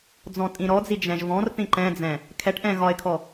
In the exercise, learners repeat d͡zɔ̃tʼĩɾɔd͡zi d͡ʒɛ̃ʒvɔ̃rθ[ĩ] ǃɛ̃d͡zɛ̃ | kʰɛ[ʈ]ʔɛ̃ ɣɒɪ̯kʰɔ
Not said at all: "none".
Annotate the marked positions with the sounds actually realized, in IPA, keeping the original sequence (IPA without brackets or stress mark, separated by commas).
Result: ĩ, ʈ